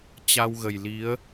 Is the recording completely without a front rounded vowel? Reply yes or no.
yes